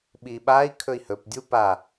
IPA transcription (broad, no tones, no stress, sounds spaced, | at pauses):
ɓ i ɓ a i̯ kʰ ɵ i̯ h ɵ p dʲ u p a